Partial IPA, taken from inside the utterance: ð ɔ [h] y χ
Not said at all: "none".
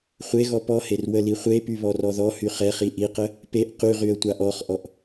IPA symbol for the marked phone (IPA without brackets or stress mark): h